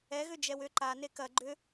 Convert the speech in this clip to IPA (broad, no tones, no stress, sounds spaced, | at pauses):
ɛ ɣ ʏ d͡ʒ ɛ w ʏ ǃ a n e k ɐ ɡ͡ǃ ʏ